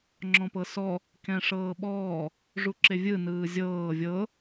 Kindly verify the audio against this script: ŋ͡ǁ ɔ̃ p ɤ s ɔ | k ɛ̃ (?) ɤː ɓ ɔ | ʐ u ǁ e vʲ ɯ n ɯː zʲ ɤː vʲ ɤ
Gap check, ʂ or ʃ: ʂ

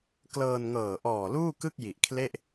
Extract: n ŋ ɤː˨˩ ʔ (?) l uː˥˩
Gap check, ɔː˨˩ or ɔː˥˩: ɔː˨˩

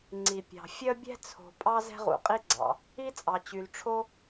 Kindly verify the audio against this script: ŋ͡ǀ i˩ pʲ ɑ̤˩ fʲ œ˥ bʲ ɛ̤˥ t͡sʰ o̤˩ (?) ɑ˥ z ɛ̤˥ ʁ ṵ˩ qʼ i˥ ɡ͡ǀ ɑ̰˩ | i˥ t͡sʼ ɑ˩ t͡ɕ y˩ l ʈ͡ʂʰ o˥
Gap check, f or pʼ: pʼ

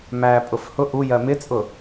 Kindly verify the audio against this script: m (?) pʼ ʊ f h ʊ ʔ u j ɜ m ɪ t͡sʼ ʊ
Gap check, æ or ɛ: æ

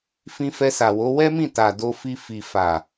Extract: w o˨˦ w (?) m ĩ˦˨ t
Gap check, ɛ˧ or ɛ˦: ɛ˦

